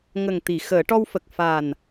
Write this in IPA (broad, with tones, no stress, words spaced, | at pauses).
ŋə˨˩ŋt̪i˨˩˨ xəː˨˩˦ʈɔ˧wfə˨˩k̚ fa˨˩n